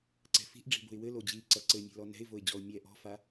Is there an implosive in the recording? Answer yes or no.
no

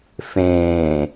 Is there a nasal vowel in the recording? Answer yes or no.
yes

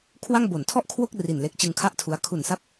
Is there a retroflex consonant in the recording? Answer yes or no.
no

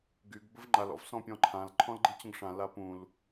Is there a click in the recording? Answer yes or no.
yes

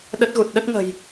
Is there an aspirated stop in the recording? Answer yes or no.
no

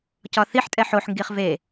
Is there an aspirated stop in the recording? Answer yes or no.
no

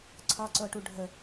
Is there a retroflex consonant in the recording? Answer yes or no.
yes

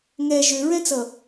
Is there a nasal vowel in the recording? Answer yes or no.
yes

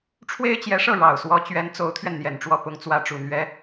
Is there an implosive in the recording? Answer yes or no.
no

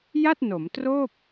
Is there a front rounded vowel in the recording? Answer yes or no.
no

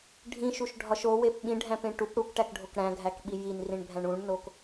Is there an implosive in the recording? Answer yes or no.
yes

